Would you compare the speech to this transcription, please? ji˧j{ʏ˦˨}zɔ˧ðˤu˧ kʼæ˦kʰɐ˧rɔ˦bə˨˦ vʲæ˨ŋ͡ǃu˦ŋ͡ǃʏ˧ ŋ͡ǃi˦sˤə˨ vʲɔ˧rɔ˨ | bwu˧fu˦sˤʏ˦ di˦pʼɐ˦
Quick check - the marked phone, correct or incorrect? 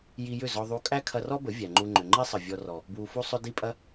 correct